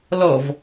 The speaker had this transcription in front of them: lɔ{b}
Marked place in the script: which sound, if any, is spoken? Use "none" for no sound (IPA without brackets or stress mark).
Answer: v